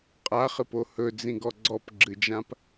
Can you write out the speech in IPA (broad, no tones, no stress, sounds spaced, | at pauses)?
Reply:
qʼ a χ ɨ p o h ɵ d͡z ĩ ɡ ɔ ɡ͡ǀ ɔ p ɡ͡ǁ ɨ d͡ʒ ã p